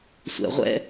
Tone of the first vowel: low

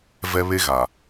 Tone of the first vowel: high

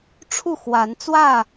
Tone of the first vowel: falling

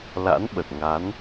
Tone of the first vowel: rising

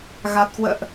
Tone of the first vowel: low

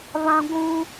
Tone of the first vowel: high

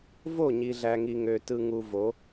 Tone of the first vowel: falling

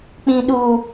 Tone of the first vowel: low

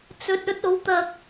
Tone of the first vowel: rising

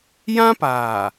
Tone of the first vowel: high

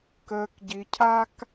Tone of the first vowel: low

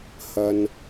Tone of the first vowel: low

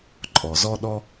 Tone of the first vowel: low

